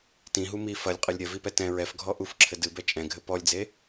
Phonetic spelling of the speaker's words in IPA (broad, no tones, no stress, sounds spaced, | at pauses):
t ĩ ɦ u m i f ɐ lʲ qʼ ɨ lʲ ɾʲ ɐ v i p ɛ t ɛ̃ ɹ ɛ f ɡʱ ɔ ʔ u f ǁʰ ɘ d ɨ b ɛ t͡ʃʼ ɛ̃ ɡʱ ɘ p ɔ lʲ d͡z e